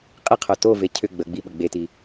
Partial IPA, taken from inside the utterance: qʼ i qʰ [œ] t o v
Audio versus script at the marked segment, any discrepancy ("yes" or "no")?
no